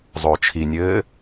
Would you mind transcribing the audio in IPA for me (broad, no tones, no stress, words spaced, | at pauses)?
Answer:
zˤot͡ʃʰinʲɘː